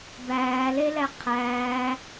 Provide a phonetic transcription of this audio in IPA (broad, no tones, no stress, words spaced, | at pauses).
bæːlelæ qʰæː